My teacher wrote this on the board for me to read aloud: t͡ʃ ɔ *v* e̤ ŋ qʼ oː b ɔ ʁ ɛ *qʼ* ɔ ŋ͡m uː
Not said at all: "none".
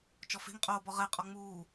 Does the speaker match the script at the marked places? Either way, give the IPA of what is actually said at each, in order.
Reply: f, qʼ

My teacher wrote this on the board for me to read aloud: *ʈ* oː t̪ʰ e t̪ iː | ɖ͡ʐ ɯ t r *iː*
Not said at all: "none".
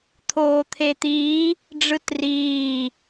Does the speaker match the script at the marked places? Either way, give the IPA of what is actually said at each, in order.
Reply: t̪ʰ, iː

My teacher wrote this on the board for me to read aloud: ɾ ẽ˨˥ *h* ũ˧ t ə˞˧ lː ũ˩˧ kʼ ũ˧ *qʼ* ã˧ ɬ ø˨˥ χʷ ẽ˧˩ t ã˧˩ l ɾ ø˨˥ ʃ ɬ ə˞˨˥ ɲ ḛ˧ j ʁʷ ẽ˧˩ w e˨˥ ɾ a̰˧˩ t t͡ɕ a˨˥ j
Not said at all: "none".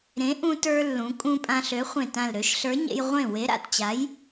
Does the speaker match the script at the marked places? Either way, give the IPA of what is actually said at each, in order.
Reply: ʔ, pʼ

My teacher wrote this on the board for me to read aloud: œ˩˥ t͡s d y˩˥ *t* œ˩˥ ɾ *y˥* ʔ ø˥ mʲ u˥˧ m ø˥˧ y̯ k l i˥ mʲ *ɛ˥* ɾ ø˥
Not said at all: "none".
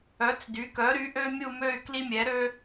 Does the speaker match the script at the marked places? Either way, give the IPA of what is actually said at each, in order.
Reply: k, y˩˥, ɛ˩˥

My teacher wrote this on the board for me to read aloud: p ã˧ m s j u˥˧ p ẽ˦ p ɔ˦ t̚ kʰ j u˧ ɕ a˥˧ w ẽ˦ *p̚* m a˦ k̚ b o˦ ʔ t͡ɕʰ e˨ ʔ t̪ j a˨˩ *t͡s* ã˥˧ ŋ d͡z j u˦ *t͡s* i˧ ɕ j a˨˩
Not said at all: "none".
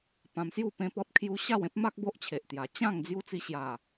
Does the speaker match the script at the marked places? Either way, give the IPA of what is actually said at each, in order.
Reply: p̚, t͡ɕ, t͡s

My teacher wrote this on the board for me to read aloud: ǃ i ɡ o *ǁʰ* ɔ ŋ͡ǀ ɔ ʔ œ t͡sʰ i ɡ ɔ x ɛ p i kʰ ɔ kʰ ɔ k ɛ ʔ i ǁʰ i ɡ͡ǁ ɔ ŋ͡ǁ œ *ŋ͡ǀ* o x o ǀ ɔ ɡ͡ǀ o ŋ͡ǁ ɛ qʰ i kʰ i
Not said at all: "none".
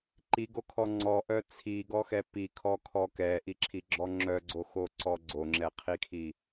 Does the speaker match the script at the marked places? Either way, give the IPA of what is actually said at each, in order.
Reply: kʰ, ɡ͡ǀ

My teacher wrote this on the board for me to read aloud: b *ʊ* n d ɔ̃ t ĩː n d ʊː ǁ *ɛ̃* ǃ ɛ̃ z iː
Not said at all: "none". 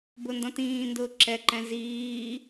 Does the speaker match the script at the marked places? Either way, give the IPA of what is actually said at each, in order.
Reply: ʊ, ɛ

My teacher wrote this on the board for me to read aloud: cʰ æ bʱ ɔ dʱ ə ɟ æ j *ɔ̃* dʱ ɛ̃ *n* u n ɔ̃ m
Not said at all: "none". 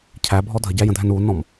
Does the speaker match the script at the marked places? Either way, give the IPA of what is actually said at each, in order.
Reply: ə̃, n

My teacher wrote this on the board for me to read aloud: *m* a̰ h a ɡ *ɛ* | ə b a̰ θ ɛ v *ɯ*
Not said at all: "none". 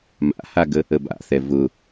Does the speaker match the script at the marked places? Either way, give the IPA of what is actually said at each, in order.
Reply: m, ə, ʊ

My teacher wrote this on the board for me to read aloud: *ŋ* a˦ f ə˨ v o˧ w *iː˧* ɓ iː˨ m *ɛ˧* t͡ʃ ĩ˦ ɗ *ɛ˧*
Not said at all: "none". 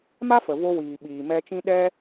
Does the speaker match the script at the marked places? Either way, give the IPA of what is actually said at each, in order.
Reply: m, iː˨, ɛ˧, ɛ˦

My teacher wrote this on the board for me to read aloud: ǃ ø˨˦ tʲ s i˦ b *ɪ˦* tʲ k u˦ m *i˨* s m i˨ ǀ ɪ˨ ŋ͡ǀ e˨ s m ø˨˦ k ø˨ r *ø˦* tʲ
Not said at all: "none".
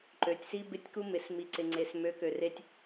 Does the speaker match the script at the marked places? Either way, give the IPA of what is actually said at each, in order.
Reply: ɪ˦, ɪ˨, e˦

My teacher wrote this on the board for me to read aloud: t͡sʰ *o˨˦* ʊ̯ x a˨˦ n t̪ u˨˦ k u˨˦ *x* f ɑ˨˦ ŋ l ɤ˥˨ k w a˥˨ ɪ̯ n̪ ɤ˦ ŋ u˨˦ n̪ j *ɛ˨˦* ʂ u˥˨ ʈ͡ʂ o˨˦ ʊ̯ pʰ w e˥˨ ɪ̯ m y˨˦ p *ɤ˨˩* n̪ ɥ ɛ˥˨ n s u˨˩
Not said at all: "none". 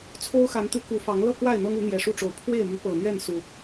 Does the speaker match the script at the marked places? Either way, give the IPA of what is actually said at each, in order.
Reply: o˦, none, ɛ˨˩, ɤ˨˩

